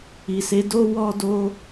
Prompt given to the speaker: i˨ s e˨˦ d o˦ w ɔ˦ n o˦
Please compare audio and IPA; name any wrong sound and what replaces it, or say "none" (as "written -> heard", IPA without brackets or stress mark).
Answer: n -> d